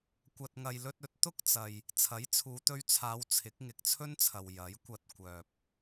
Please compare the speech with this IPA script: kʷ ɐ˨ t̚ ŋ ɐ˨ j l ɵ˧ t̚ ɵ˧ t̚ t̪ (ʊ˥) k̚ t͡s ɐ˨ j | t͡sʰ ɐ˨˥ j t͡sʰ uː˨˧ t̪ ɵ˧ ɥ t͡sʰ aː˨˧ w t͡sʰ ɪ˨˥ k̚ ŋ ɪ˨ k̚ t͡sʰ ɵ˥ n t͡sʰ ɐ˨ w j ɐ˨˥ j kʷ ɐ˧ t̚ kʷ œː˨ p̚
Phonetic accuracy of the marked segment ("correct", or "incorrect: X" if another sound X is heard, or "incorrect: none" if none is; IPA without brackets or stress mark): correct